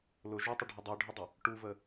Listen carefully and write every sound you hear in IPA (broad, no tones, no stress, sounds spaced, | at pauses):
l ʊ ʒ u tˤ ɪ ɖʱ ʊ dˤ u ɖʱ ɪ dˤ ə | ʈ u v ə